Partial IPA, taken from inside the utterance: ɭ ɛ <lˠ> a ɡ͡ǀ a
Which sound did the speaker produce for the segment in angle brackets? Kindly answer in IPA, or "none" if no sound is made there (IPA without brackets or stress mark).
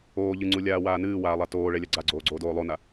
lʲ